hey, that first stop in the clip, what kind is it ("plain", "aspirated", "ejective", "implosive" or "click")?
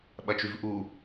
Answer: implosive